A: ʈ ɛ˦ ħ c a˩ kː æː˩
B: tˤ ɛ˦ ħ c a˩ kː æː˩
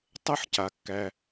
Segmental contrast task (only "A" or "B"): B